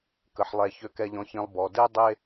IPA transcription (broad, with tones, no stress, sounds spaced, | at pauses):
k ə˨ ħ lˠ ɛ˨ ç ø˨ k ɛ˨ ʎ ɔ̃˨ ç ĩ˨ lˠ b ɔ˨ d e˦ dˤ e˦